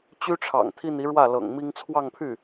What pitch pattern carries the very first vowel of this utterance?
high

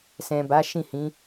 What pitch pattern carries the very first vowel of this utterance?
low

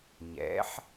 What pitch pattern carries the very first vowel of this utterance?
rising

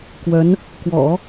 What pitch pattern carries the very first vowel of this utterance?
rising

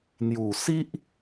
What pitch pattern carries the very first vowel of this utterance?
low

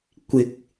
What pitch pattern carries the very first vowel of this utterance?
rising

